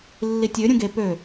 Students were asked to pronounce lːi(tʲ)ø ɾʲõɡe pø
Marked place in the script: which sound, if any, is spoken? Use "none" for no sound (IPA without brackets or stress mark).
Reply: tʲ